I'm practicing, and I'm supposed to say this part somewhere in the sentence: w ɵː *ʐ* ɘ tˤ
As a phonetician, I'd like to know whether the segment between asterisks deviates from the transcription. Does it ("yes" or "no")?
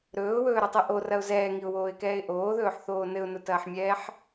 yes